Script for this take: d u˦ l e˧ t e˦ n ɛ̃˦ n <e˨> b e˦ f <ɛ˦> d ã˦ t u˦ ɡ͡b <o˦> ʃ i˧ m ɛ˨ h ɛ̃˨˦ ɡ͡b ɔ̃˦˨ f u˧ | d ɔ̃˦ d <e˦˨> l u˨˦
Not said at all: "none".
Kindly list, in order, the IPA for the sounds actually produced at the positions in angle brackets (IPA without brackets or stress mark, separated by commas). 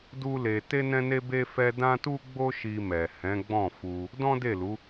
e˦, ɛ˧, o˦, e˦˨